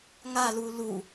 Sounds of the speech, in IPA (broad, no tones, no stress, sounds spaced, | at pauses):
ŋ a l u l u